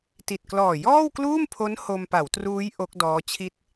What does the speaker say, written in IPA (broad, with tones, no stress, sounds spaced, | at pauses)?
t i˨˩ t̚ k l ɔː˨˩ j ɔː˥˩ w k l uː˥˩ m pʰ o˦˥ n h o˧ m p a˩˦ w t r uː˦˥ j ʔ o˦˥ k̚ d ɔː˦˥ t͡ɕʰ i˥˩ t̚